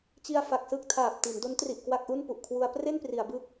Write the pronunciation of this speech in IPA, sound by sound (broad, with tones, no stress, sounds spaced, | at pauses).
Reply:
t͡ɕ i˧ a̯ f a˨˩ k̚ s ɯ˥˩ k̚ tʰ aː˨˩ p̚ t i˩˦ n d o˦˥ n t r i˨˩ ʔ k w a˥˩ k̚ ʔ u˥˩ n p u˨˩ ʔ kʰ w u˧ a̯ p r e˥˩ n p r i˩˦ a̯ b ɯ˦˥ k̚